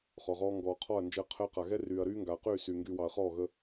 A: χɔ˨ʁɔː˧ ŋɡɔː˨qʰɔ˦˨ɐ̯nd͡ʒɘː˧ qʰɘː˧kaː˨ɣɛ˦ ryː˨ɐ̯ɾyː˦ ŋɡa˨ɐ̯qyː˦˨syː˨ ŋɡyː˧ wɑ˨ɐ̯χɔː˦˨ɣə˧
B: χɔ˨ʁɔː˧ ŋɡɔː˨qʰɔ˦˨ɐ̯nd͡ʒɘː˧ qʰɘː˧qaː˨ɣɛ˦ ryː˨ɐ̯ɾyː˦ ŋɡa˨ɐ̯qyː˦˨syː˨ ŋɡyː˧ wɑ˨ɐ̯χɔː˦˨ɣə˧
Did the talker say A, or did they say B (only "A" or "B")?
B